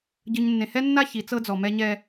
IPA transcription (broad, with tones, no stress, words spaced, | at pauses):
ɟɯ˨ɲnːẽ˨hɛ˦nːa˦ çi˨˦t͡sɤ˦d͡zɔ˨ mɛ˦ɲɛ˦